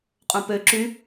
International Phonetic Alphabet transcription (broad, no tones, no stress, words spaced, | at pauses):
qʼõpø ǁy